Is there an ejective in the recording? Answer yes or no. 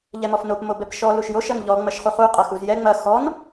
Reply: yes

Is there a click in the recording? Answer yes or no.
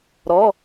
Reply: no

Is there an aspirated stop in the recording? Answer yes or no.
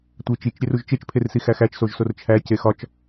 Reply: yes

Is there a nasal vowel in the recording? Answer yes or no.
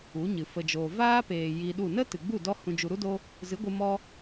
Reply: yes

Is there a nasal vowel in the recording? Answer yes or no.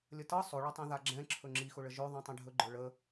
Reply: yes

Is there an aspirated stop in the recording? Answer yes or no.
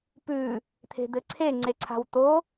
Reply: yes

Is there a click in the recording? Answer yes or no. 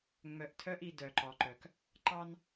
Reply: yes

